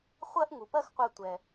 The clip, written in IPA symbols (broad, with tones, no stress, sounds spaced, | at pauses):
χʷ ɜ˥ ʔ ŋ u˩ p ɜ˥ x qʷ ɜ˧ tʷ ɛ˩